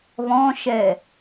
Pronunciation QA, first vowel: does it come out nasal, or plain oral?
nasal